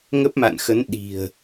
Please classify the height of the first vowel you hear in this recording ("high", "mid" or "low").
mid